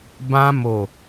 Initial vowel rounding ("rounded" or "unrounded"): unrounded